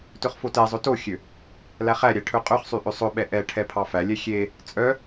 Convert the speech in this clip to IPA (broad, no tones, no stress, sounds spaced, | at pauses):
t ɵ χ f o t ɛ zˤ ɵ t o xʲ ø | l æ χ æ ɾʲ æ ʈʰ ɵ qʼ ɵ χ sˤ y ʔ ø sˤ ɵ ɓ ɛ ʔ ɛ ʈʰ ɛ pʰ ɑ f æ lʲ ɛ xʲ e | t͡sʼ œ